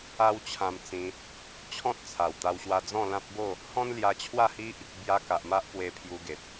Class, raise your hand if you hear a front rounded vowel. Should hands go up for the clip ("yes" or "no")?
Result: no